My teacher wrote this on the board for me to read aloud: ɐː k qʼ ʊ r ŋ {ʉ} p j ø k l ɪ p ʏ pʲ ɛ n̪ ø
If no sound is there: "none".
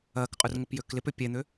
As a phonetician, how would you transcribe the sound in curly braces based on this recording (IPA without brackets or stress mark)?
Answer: ʊ